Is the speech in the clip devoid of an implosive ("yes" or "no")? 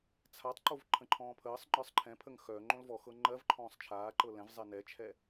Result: yes